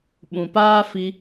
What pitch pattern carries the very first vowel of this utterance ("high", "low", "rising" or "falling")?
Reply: low